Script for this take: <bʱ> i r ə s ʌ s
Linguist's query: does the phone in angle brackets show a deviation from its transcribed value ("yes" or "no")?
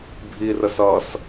no